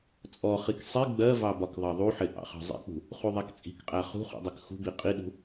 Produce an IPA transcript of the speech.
t͡sʼ ɔ χ i k sˤ i ɡ͡b ɜ v ɑ b ɒ k ðˤ ɑ ðˤ u ħ ɪ ʔ ɑ̰ χ ɑ̤ zˤ ḭ k͡p ṳ | χ u ðˤ ɛ k t͡sʼ i̤ k qʼ æ χ ṳ χ ṵ dˤ ɛ k x ṳ b i qʼ i ɗ ṳ

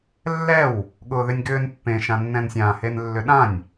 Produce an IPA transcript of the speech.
lː ɛ w | ɠ ʊː ð ʏ nʲ ɡ ʏː n pː ẽ ʃ ã nː ɛ̃ n sʲ ã h e n lː ʏ ɗ ã nʲ

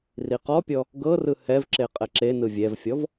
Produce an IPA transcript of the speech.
r i q ɔ pʲ ɔ | ɡ ɤ r ɯ h ɛ v ǁ e qʼ ɛ ǁ e n ɯ vʲ ɛ v fʲ ɔ v

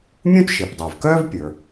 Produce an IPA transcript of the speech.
mʲ ũ˥ t ʃ e˩ p dˤ ə˞˩ v k œː˥ v pʲ ə˞˩

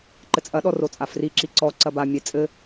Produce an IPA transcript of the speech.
ǃ ɘ t͡sʼ ɐ ɗ ɔ r o t͡sʼ a f r i ǁ i ǀ ɔ ǀ ɐ b a mʲ ɛ t͡sʼ ɘ

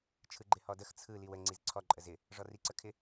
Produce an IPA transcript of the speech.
t͡ʃʰ ɯ ɡ͡ǃ ɪ h ɔ d ə x t͡sʰ ɯ l i w ə ŋ͡ǀ i z ǀʰ ɔ ǃʼ ə z ɪ | ʐ ɔ r i ǀ ə kʰ ɪ

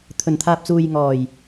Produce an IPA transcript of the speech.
t̪ʰ ɵ˨˩ n t̪ʰ aː˨ p̚ t͡s uː˨ j ŋ ɔː˨˩ j

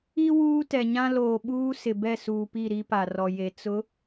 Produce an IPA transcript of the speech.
i˦ w uː˦ t ɛ˨ ɲ ã˦ l oː˨ ɓ uː˦ s ɪ˨ b ɛ˦˨ s uː˨ p i˦˨ ɾ i˦ p a˨ r ɔ˨ j e˨ t͡s ʊ˨˦

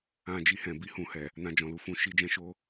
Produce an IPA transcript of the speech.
ã˧ d͡ʒ i˧ h ɛ̃˨ b i˨˦ h ũ˧ h ɛ˨ | n ã˧ d͡ʒ ɔ̃˨ l u˨ f ũ˧ ʃ i˦ d͡ʒ ɛ̃˦ ʃ o˦

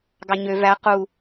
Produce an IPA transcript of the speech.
ɡ ɑ ɲ ø v æ q u

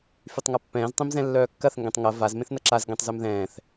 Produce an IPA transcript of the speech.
f y tˤ ŋ a pː ɛ̃ː z tˤ ẽ m z ɛ̃ lː œː kː ɐ θ ŋ ɡ ɛ̃ tˤ ŋ ɐ v a z m ẽ θ n ɐ ǁ a z ɡ ɛ̃ tˤ z œ m ð ɛ̃ː θ

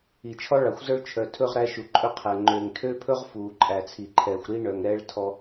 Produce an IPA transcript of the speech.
i˨ t͡ʃʰ ɔ˦ ɭ ɑ˨ xʷ z œ˦ ɭ t͡ʃʰ œ˨ tʰ ɵ˦ ʁ ɾ æ˦ ʃ u˨ ǃʼ ɵ˦ qʰ ɛ˨ ŋ͡ǃ øː˨ ŋ tʰ øː˦ pʰ ɵ˦ ʁ f uː˨ ǃʼ æ˨ t͡sʰ i˨ ǃʰ ɛː˨ xʷ ɾ iː˦ ɳ œ˨ ŋ ɾ ɛː˦ ɭ tʰ ɔ˦

